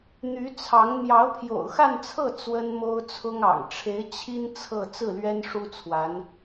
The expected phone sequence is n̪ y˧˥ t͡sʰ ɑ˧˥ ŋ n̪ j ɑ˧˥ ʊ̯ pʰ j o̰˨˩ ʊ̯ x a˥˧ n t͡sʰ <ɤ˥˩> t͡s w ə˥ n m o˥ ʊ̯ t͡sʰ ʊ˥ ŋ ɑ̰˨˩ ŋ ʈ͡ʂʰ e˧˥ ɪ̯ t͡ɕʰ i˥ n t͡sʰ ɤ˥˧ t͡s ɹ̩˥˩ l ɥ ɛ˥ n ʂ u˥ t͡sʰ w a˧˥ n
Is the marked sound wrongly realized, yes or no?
no